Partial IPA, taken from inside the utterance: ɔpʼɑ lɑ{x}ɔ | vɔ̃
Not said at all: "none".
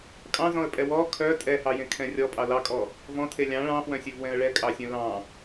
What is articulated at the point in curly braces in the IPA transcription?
kʼ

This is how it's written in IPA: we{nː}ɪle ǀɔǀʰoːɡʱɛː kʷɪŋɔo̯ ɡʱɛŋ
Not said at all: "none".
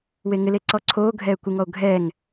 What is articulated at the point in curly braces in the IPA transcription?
ŋ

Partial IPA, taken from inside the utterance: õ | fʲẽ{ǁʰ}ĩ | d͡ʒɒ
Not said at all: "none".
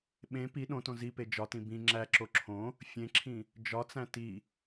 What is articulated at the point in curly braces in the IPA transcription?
ǁʰ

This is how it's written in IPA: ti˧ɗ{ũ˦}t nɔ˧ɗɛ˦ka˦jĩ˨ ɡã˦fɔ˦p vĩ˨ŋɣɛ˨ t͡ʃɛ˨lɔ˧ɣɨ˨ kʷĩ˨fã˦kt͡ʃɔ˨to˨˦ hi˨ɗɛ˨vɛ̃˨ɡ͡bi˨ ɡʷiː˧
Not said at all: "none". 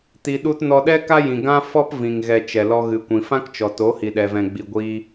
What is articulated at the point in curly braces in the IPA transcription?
u˦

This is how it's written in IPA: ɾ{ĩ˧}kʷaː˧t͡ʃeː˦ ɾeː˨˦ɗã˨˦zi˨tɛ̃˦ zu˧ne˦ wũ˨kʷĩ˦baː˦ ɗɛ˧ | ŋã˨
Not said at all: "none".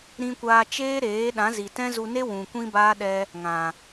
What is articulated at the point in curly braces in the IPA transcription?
ĩ˧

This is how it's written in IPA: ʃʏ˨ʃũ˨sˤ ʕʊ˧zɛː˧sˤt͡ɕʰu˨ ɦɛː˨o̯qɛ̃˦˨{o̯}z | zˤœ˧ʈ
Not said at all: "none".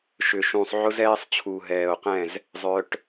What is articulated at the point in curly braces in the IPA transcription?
none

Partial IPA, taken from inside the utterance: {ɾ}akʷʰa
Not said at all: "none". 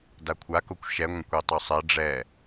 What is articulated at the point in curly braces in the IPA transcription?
d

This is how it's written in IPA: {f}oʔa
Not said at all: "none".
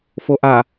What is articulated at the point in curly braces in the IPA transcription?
f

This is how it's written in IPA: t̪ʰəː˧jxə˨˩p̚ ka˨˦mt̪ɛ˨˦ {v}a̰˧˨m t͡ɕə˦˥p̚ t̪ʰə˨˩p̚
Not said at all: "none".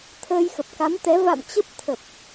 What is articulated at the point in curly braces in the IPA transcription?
v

